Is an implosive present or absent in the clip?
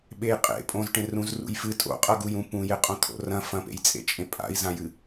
present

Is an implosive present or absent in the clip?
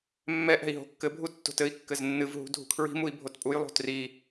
absent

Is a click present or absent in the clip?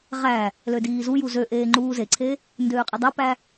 present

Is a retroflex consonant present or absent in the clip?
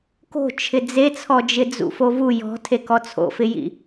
absent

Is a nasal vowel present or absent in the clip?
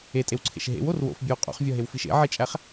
absent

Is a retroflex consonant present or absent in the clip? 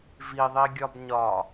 absent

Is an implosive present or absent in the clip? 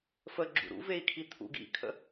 absent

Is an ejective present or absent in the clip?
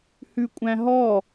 present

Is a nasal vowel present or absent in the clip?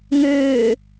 absent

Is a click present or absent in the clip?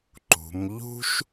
present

